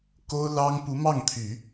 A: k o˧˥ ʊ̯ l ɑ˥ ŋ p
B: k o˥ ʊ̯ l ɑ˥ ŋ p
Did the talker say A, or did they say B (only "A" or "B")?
B